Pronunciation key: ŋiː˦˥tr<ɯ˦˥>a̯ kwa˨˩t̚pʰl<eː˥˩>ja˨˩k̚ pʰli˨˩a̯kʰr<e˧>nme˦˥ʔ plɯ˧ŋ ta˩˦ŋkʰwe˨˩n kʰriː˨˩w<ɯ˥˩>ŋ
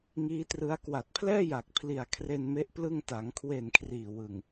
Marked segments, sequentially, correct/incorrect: correct, incorrect: ɛː˥˩, correct, incorrect: ɯ˨˩

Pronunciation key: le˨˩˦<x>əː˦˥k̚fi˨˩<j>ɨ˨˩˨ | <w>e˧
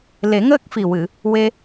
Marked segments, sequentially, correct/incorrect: incorrect: ŋ, incorrect: w, correct

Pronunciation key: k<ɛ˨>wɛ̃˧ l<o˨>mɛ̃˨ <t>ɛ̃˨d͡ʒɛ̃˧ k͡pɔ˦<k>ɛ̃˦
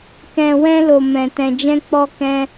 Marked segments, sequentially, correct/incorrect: incorrect: ɛ̃˨, correct, correct, correct

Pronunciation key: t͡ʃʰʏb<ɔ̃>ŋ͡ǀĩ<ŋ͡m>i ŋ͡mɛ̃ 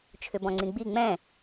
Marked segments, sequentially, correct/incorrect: correct, incorrect: ɡ͡b

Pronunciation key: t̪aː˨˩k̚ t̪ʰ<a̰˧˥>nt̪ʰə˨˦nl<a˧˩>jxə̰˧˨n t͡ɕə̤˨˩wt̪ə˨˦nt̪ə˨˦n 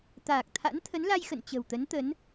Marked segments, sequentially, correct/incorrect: correct, incorrect: a˧

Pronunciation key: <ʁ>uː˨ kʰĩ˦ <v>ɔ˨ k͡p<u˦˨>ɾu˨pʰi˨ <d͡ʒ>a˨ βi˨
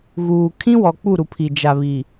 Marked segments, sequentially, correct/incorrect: incorrect: ɣ, incorrect: w, correct, correct

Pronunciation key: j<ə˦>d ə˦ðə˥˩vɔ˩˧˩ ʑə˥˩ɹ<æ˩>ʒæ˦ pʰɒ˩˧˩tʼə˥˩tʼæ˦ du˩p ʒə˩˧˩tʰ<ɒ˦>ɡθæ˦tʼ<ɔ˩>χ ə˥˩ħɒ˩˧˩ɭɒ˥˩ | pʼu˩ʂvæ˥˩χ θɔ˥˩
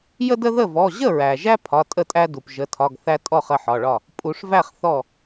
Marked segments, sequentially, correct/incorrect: correct, correct, incorrect: ɒ˩˧˩, incorrect: ɔ˥˩

